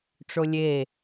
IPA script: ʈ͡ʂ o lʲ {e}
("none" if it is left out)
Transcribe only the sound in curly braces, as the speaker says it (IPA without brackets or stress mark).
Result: e